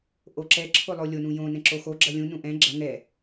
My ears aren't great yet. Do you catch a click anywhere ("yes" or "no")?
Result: yes